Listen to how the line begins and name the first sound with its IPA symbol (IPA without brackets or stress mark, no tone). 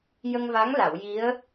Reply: j